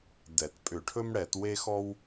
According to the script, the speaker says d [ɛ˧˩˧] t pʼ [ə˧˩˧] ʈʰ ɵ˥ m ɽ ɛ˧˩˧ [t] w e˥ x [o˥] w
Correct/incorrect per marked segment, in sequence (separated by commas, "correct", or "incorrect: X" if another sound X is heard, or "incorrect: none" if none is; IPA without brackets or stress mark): correct, incorrect: ʏ˧˩˧, correct, incorrect: ɔ˥